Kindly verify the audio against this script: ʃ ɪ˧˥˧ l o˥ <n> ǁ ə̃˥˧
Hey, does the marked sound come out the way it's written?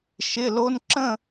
yes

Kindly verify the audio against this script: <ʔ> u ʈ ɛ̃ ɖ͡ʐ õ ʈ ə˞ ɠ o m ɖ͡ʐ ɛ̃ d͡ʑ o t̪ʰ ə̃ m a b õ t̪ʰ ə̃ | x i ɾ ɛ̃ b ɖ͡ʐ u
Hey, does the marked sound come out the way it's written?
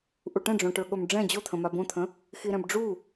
yes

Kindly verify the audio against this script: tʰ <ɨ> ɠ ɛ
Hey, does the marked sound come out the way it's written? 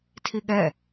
no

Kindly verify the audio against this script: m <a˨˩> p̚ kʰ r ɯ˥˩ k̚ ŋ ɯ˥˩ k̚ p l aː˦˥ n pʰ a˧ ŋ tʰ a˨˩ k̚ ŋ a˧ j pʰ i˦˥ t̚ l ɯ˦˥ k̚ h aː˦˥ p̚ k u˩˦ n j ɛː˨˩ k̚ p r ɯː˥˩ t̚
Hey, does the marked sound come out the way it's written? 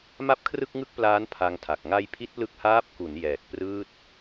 no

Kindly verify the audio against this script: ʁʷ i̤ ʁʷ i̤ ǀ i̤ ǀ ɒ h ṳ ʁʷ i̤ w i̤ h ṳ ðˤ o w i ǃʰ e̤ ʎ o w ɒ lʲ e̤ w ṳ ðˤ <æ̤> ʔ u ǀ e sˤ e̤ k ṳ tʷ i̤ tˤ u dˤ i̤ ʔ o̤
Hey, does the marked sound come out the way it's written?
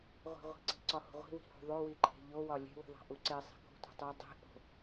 yes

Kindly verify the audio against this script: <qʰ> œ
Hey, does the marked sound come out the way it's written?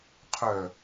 yes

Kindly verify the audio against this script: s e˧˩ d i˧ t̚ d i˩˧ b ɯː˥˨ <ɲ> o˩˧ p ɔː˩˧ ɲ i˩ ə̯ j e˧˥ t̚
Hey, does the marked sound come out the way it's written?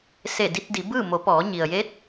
no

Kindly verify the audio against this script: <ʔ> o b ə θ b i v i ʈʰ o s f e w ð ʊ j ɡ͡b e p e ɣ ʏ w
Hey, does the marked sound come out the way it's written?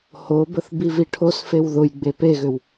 no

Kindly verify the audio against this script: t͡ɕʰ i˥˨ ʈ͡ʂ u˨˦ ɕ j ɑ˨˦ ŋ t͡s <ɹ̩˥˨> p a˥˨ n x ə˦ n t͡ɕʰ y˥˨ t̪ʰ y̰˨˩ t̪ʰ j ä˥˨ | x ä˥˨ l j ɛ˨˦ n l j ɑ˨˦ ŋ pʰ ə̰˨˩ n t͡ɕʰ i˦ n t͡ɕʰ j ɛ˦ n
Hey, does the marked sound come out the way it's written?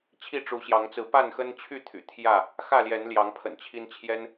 no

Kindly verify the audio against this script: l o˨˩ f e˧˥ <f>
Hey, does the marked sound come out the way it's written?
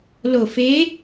no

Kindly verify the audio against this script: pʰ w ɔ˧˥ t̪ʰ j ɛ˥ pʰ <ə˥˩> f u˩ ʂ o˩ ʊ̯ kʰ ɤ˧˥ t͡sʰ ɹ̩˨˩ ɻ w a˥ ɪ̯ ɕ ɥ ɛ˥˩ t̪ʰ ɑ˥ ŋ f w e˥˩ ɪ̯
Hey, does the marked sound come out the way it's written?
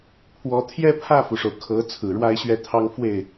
no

